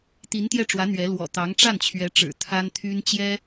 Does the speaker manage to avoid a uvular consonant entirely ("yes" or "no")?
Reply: yes